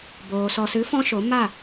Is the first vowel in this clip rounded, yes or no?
yes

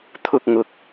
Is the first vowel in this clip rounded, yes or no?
yes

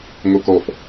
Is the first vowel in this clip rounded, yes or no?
yes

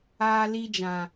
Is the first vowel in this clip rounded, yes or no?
no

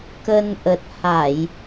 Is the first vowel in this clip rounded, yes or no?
no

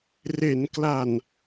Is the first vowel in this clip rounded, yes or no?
no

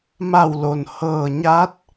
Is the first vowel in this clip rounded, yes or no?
no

